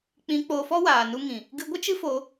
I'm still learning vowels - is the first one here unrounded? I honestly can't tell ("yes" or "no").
yes